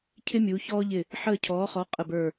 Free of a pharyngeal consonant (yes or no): no